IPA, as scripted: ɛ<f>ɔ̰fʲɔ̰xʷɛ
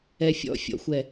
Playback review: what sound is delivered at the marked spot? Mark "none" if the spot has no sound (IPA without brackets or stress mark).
fʲ